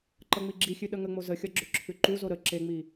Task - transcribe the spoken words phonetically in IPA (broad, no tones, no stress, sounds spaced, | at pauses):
ǃ ʌ ŋ͡m i ɡ͡ǁ i xʲ ʉ ɗ ə ŋ ə ŋ͡m o z ə xʲ ʌ ɡ͡ǁ ʏ ǁʰ ʉ ǃ u z o ɾ ə ǁ e ŋ͡m i